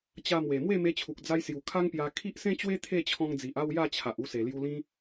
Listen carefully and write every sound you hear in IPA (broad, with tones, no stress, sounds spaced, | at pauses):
t͡ɕ a˧ m w e˨˩ m w e˥˧ m e˧ t͡ɕʰ u˨ k̚ d͡z a˧ j s j u˨˩ kʰ a˦ ŋ p j a˧ kʰ i˦ ʔ s ẽ˦ t͡ɕ w e˦ t̪ʰ e˥˧ t͡ɕʰ ɔ̃˧ ŋ d͡z i˨ ʔ a˥˧ w j a˥˧ t͡ɕʰ a˨ ʔ u˧ s e˨˩ l j u˧ l ĩ˦